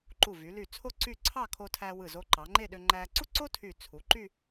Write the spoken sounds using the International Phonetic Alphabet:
ǃu˧˩vy˩˧ly˧˩t͡sʰo˥˧ ǀy˥˧ ǀʰɑ˥˧kʰo˧tʰæ˧ wɯ˧˩zo˧ǃɑ˩˧ŋ͡ǃe˥˧ ɗø˧ŋ͡ǃæ˧ ǀu˥ǀo˥ tʰy˧˩t͡sʰu˩˧ǃy˥˧

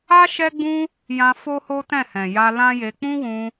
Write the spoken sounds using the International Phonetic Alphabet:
a˦ ʃɛ˦ɡ͡bũ˦ | jã˧fo˦ho˦ tɛ̃˦˨hɛ̃˨ja˧ lã˦je˧ k͡pũ˦wũ˧

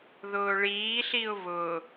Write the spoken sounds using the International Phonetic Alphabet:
ðʊːɭiːɬiʊ̯ βʊ

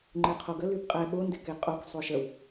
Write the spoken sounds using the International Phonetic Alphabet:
ŋ͡ǃeqʰoɡə lybqʼɛ ɓo ndɪkeqʼok sˤoʃəw

